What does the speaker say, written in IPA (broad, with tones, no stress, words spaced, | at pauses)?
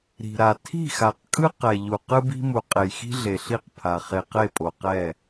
ɾi̤˨ɾa˨ tʰi̤˦˨xa˨qkʼɯ˦ qɛ˨ʎu˨ qɯ˦bi̤˦mu˨ qʼe˨jxi̤˦ ɮe˨ɬi˦˨qpʰa˨ χe˨qe˦˨pʼo˨qɛ˦˨